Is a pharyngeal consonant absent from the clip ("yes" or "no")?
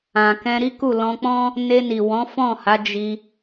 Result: yes